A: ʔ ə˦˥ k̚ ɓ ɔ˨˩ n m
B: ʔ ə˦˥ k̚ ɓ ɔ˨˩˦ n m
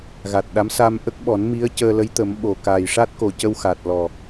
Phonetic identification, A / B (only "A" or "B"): B